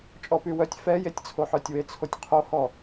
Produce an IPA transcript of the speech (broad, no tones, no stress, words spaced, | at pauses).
t͡ʃʼɔpywœtʲ fɛjetʲt͡sʰoħœtʲ wet͡sʰotʲqʰohɔ